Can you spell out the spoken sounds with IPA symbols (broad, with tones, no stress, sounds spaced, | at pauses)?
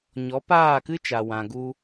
ɲ ɔ˨˦ p aː˦˨ k ɨ˦ t͡ʃ a˨ w ã˨ ɡ u˧